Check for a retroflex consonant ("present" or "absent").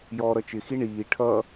present